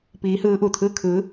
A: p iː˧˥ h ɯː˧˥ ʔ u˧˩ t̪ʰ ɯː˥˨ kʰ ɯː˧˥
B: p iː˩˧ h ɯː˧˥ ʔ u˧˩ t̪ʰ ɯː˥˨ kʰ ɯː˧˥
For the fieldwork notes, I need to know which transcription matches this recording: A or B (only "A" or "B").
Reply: A